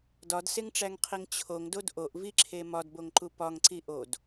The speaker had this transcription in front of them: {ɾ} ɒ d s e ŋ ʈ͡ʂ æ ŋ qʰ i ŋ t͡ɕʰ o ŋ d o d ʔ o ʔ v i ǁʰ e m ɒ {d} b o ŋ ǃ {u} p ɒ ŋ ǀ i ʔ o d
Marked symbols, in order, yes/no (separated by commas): no, yes, yes